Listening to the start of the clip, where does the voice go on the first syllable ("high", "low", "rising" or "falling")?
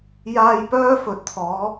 low